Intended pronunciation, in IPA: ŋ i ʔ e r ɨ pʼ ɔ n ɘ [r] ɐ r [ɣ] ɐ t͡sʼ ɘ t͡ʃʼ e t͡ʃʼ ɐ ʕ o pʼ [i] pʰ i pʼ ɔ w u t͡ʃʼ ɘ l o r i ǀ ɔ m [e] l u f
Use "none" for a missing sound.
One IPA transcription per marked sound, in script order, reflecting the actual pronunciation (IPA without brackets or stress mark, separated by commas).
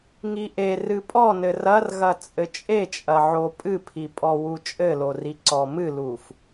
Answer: r, ɣ, ɨ, ɨ